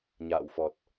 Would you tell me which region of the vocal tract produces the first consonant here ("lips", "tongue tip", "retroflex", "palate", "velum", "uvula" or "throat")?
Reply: palate